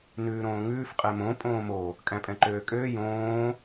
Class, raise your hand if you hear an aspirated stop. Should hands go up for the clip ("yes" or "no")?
no